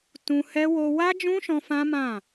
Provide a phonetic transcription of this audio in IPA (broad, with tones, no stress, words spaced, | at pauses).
tũ˧ hɛ˦ wo˧wa˦d͡ʒũ˦ʃɔ̃˧ fã˦mã˦˨